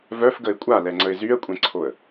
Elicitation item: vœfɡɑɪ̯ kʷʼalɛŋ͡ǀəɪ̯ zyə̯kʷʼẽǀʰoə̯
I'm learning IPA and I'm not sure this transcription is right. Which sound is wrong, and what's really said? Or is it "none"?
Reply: ɑ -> ə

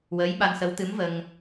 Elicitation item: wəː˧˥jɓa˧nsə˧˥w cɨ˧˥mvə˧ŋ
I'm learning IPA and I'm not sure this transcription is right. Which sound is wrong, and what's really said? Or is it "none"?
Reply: c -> t̪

